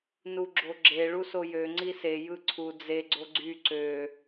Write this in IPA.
n u ɡ͡ǁ o ɡ͡ǁ e ɭ u s o j ø ŋ͡ǀ i s e j ɯ ǀʰ u d͡z e ɡ͡ǀ o ɡ͡ǀ y ǀ ø

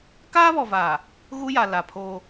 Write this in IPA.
k aː˦ β ɔ˨ v aː˨ | ɣ u˦ j a˨ l a˨ pʰ oː˦

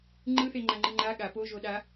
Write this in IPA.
ŋ͡ǃ ɯ θ e ŋ͡ǃ a ŋ͡ǃ ɯ ŋ͡ǃ a ɠ a p o ʒ o ɗ a

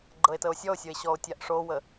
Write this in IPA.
ɡ͡ǃ ɤ e̯ t ə o̯ sʲ ɔ o̯ sʲ o e̯ ɕ ɔ o̯ tʲ a ʔ ʂ o w ə

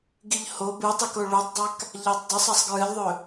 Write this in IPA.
ɡ i ʎ h o b ɨ tˤ i k o ɭ u tˤ dˤ a k | ʎ a tˤ dˤ ɐ sˤ a sˤ ɡ ɹ ɨ lʲ ðˤ ɵ

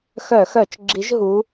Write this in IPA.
x œ˧˩˧ x œ˧˩˧ t͡ʃ ɡ͡ǁ i˨˦ ʒ ɦ u˨˦

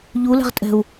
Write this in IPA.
ʎ u l ɛ̤ ʁ tʼ ɛ̤ u̯

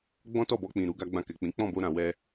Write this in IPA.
ɡ͡b ɔ̃˦ t ɔ˦˨ b ɔ˧ k͡p ĩ˨ ɾ u˧ ɡ a˧ ɡ͡b ã˧ k ɛ˨ k͡p ĩ˨˦ k͡p ɔ̃˦˨ b o˧ ɾ ã˨ w ɛ˧

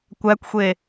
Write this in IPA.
kʷ æ kʷ xʷ e

